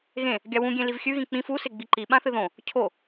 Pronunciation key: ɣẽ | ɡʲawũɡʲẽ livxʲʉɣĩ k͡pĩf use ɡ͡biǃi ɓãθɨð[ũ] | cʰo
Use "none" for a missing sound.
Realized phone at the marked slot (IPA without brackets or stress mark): õ